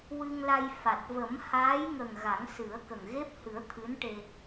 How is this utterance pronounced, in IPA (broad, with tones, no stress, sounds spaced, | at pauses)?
w ɨ˧ ŋ l a˧ j f a˨˩ t̚ v ə˨˩˦ m h aː˧˥ j ŋ ə˨˩ ŋ ɣ a˨˩˦ ŋ s ɨ˨˩˦ ə̯ k ə˨˩ ŋ ɣ e˦˥ p̚ h ɨ˨˩˦ ə̯ t̪ʰ ɨ˧˥ n ʈ e˧